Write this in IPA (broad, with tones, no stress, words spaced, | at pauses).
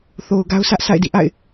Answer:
θo˨ʊ̯ɡa˦ʊ̯sʰä˦ʔ sʰa̰˦˨ɪ̯dḭ˦˨ʔa̰˦˨ɪ̯